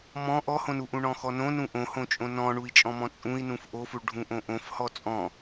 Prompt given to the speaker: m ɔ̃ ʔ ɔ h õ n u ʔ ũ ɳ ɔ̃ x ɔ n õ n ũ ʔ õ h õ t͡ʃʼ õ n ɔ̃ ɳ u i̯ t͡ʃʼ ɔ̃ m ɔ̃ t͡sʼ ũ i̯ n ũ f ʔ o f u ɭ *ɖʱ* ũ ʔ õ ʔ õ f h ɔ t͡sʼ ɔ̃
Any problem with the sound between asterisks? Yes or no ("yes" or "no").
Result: no